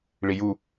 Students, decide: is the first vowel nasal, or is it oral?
oral